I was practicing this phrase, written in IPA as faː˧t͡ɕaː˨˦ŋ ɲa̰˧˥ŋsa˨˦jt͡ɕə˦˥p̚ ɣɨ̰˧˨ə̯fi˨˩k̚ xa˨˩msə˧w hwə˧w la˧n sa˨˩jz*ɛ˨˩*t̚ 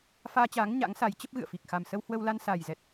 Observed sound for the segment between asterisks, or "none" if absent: ɛ˨˩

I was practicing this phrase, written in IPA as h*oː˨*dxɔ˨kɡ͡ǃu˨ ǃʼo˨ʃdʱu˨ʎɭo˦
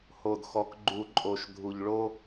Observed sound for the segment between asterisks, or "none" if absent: o˨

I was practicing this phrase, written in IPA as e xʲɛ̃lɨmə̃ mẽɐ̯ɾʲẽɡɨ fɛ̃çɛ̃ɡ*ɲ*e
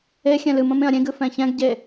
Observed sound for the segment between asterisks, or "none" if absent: ɟ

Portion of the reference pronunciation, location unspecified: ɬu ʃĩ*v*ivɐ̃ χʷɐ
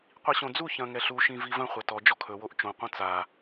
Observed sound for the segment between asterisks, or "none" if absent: v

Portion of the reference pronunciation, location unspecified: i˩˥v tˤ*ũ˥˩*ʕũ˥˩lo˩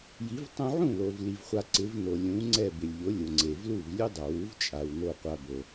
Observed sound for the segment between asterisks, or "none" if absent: ũ˧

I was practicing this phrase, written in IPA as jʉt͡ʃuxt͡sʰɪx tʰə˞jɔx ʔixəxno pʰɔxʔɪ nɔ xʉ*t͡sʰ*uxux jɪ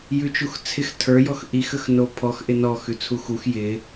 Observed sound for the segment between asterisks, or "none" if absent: t͡sʰ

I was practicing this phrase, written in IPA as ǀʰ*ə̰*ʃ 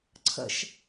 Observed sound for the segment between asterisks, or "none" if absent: ə̰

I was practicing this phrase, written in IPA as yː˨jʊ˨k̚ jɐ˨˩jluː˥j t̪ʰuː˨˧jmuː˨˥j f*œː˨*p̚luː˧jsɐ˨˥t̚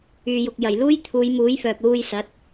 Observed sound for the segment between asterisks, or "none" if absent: œː˨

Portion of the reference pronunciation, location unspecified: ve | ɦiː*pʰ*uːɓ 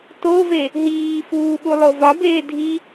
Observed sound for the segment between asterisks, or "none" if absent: f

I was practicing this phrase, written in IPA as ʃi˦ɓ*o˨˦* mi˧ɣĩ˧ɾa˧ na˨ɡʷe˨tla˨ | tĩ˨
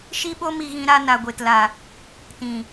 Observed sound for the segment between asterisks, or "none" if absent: o˦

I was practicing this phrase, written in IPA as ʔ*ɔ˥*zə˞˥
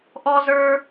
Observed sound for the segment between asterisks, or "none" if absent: ɔ˥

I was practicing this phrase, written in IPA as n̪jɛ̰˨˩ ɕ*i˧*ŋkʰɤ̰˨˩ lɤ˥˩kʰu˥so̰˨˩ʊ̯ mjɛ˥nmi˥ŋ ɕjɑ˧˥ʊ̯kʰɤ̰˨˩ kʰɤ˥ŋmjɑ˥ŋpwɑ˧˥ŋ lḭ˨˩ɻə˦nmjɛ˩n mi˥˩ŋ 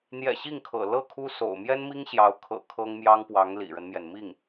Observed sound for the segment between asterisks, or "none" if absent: i˥˩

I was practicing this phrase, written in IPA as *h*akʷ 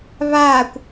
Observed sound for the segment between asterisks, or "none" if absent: β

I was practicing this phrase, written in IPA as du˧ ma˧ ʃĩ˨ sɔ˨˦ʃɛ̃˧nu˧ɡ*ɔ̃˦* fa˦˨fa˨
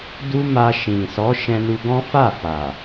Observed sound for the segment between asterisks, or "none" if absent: ɔ̃˦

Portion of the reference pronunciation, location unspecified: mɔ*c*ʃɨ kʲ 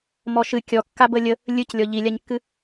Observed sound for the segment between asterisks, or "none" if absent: none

